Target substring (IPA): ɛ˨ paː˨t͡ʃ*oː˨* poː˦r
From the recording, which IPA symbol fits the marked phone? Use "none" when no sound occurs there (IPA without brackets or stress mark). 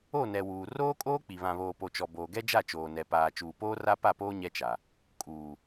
uː˨